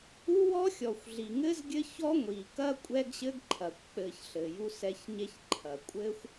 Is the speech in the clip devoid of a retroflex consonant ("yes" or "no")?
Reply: yes